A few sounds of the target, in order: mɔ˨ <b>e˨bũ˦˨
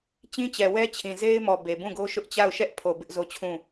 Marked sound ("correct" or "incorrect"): correct